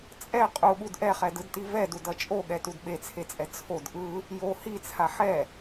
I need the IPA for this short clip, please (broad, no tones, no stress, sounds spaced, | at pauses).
t͡sʼ ɛ qʼ u ɠ u d ʔ ɛ χ ɛ d ɯ d t i v ɛ d u d ʌ t͡ʃʼ o ɠ ɛ t u d ɓ e t͡sʰ e t͡sʼ ɛ t͡sʰ o d ʔ ɯ | j o h i t͡sʰ a ħ ɛ